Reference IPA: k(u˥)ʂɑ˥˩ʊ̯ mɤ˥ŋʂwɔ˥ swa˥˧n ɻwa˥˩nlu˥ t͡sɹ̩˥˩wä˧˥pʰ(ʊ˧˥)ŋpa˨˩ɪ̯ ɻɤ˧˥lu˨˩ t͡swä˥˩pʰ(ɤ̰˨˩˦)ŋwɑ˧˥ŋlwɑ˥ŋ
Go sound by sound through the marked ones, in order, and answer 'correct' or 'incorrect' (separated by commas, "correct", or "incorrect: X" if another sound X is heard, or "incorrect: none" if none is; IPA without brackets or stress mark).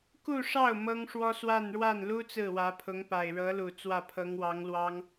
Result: incorrect: u˥˧, correct, incorrect: ɤ˧˥